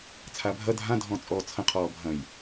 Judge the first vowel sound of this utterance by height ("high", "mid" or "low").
low